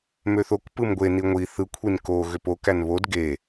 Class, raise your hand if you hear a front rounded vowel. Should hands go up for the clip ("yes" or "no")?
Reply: yes